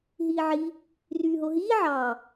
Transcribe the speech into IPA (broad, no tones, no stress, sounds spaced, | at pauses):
ɦ iː ʕ i | r yː ɦ o ɦ iː ʕ ɑ